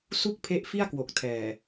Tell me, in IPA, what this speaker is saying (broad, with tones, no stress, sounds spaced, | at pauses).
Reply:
s u˥˩ k̚ pʰ e˦˥ ʔ f i˥˩ a̯ k w o˨˩ k̚ tʰ ɛː˨˩